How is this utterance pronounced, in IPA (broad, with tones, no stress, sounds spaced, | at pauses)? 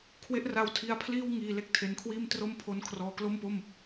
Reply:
kʰ w e˦˥ ʔ r a˧ w tʰ i˧ a̯ pʰ l iː˥˩ w ŋ iː˧ l e˦˥ k̚ tʰ e˧ n kʰ w iː˥˩ m t r o˦˥ m pʰ o˧ n kʰ r ɔː˧ k l o˥˩ m p o˥˩ m